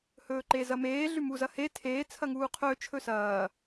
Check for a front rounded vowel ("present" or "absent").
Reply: absent